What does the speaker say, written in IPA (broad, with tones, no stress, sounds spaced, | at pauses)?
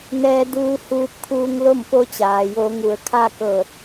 n ɛː˧ d uː˧ h uː˧ p̚ kʰ uː˧ ŋ l o˥˨ m p o˧˥ t͡ɕ aː˩ j o˩˧ ŋ u˩ ə̯ kʰ a˥˨ k ɤː˧˩ t̚